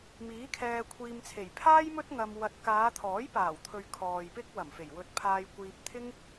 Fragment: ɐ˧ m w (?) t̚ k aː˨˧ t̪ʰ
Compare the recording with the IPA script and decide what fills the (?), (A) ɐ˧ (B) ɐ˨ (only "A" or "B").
A